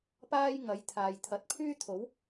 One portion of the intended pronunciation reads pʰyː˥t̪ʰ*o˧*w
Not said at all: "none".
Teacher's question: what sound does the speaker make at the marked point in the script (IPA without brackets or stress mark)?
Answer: o˨˥